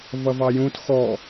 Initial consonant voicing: voiced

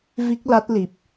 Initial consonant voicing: voiced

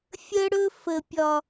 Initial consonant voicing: voiceless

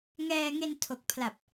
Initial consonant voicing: voiced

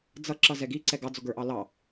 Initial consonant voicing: voiced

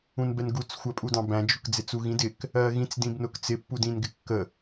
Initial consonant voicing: voiced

